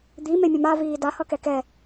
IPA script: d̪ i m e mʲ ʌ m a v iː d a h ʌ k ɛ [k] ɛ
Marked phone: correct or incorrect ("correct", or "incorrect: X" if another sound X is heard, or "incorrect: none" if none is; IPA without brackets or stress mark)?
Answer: correct